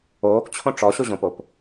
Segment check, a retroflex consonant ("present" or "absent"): present